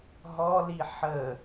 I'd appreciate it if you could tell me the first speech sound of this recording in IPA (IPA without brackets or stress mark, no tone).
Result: ɦ